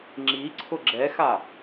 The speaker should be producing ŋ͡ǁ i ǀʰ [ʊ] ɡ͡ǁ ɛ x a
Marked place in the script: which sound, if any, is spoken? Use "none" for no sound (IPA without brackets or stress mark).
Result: ʊ